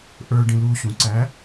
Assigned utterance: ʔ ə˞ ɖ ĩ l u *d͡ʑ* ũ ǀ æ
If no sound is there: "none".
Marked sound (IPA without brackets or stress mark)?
ɕ